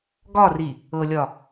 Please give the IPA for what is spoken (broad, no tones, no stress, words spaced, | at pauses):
ɡɒri | ɤlʲɒ